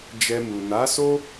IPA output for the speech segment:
d͡ʒ ɛ˧ m u˨ n a˨˦ s o˦

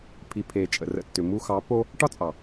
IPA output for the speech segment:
pʰ i˨ pʰ e˨ t͡ʃʼ ə̰˨ r ə̰˧ tː ʏ˨ m u˧ x ɑ˨˦ p o˦ | ʈ ɒ˦ t͡sʼ ɑ˨

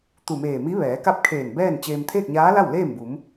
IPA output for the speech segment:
t̪ u˧˩ m eː˧˩ m i˧˥ ʋ ɛː˩˧ k a˥˨ p̚ kʰ eː˧˩ n b ɛː˥˨ n t͡ɕ eː˧ m t̪ʰ eː˥˨ k̚ ɲ aː˧˥ l a˥˨ w l eː˥˨ m b u˩˧ m

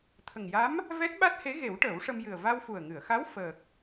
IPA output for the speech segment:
t̪ʰ ə˨˩ ŋ j a˧˥ m | v ɛ˦˥ t̚ ɓ a˦˥ t̚ h e˧˥ ɣ e˨˩˦ w ʈ əː˨˩˦ w ʂ ə˧ m j ɨ˨˩ ə̯ v a˧ w f u˨˩ ə̯ ŋ ɨ˨˩˨ ə̯ x a˧˥ w f əː˨˩ k̚

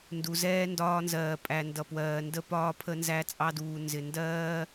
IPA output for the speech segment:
n d u˨ z ɛː˦ n d ɒː˦ n z ɜː˨ pʼ æ˨ n d ʌ˨ p w ɜː˨ n d ə˦ p ɒː˦ pʰ ə˦ n z æ˦ t͡sʼ ɑ˦ d uː˨ n z ɪ˨ n d ɜː˦

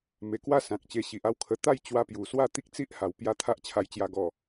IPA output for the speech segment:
m e˨˩ k w a˦ s ã˨ k̚ t͡ɕ e˧ ɕ i˨ ʔ a˥˧ w kʰ ə˧ t̪ a˥˧ j t͡ɕ w a˧ p j u˨˩ s w a˥˧ t̪ i˦ k̚ t͡s i˦ ʔ h a˨˩ w p j a˧ t̪ʰ a˦ ʔ t͡ɕʰ a˧ j t͡ɕ j a˧ ɡ ɔ˨˩

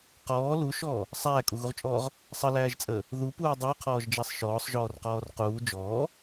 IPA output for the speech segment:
q ɔː l u ʃ ɔː | sˤ æː kʼ u ɣ u ʁ t͡ʃʼ ɔː ʁ | sˤ ə l æː ʒ t͡sʼ əː | ð u p uː dˤ əː qʰ ɔː ʒ d͡ʒ æ sˤ ʃ ɔː sˤ ʒ ɔː r q ɔː r q uː d͡ʒ ɔː

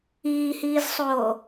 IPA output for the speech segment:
iː h iː z sˤ oː

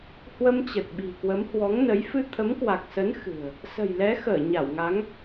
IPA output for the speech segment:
h w ə˧ m t͡ɕ ə˨˩ t̚ ɓ i̤˨˩ k w ə˨˦ m h w ɔ˨˦ ŋ n ə˨˦ j f ɨ˧ t̪ʰ ə˨˦ m k w a˨˩ k̚ s ə˨˦ n x ɨ̤˨˩ ə̯ | s ə̤˨˩ j l ɛ˨˦ x əː˧˩ ɲ a˧˩ w ŋ a˨˦ ŋ

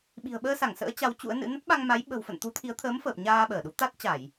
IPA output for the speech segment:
ɓ i̤˨˩ ə̯ ɓ əː˧ s a˧˩ ŋ s ə̰ː˧˥ t͡ɕ a˨˦ w t͡ɕ ṵ˧˥ ə̯ n ɨ̰˧˥ n ə˦˥ t̚ ɓ a˧ ŋ m a˨˦ j ɓ ə̤˨˩ w f ə̰˧˨ n t̪ u˨˦ t̪ʰ i˨˦ ə̯ t̪ʰ əː˨˦ m f əː˨˩ p̚ ɲ aː˧ ɓ əː˧˩ ɗ u˨˦ t̪ a˦˥ t̚ t͡ɕ a˧˩˨ j

